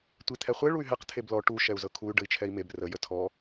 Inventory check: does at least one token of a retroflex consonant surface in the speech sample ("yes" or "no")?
yes